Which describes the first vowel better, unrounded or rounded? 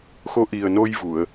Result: rounded